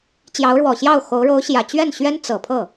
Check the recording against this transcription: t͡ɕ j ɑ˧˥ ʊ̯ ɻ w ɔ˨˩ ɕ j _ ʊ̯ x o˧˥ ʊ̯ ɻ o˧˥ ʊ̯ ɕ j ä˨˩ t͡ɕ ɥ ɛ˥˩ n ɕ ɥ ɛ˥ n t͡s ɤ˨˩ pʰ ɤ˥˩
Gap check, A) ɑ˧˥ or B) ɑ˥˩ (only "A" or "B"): B